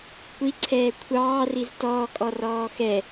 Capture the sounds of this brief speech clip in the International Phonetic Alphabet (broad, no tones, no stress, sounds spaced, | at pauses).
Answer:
kʷ i ǀʰ ɛː kʷʰ ɑː r i z t ɔː kʼ ɔ r ɔː x ɛ